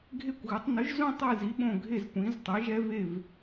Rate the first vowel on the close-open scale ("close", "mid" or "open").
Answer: mid